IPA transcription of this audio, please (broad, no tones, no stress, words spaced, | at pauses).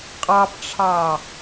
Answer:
qʼɑpʈ͡ʂʰɑ